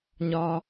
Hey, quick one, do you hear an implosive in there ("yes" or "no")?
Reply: no